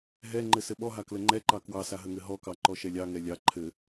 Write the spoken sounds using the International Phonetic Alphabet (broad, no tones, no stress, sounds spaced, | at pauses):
ɦ ɛ ŋ͡ǃ ɘ s ɘ ɓ ɔ ɦ a k l ə ŋ͡ǃ ɛ ǃ ɑ k w ɑ s a ɦ ə ŋ ɘ ɦ ɔ k ɑ ǃ ɔ ʃ ɛ lʲ ɑ ŋ ɛ lʲ ɑ ǃʰ ɘ